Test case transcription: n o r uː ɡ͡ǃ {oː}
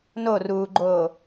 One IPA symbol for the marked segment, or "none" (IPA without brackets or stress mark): oː